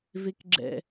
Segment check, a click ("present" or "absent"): present